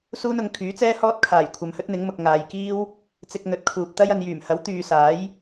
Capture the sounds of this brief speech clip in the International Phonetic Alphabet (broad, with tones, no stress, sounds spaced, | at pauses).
s uː˥ n ʊ˨ ŋ kʰ yː˨˥ t͡s ɛː˥ h ɔː˥ t̚ kʰ aː˨˩ j kʷʰ ɐ˨ m h ɵ˥ t̚ n̪ ɪ˨˥ ŋ m ʊ˨ k̚ ŋ aː˨ j k iː˥ w | t͡s ɪ˧ k̚ n̪ ɵ˨˥ t̚ kʰ uː˨ p̚ t̪ ɐ˥ j ɐ˨ n j yː˨˩ m h ɐ˨˥ w t̪ yː˨ s aː˨˥ j